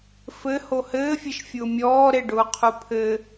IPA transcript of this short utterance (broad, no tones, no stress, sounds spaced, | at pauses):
f ɘ h o h ɘː fʲ e ʃ fʲ ʊː mʲ ɔː ɾ e ɖ ʊː qʰ u pʰ ɘ